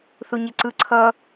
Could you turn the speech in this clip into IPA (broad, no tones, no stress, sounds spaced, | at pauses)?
θ u ɲ e ǀ ɯ ǀʰ ʌ